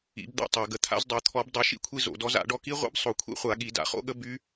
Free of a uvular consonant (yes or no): no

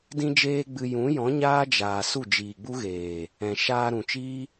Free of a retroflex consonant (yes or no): yes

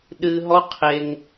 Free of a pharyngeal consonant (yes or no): yes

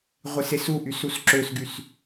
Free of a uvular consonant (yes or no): no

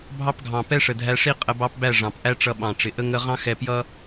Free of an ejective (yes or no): no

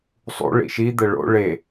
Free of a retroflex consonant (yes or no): no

